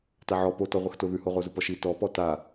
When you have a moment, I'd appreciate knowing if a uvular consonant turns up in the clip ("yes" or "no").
yes